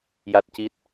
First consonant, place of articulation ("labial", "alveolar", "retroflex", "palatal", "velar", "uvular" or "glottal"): palatal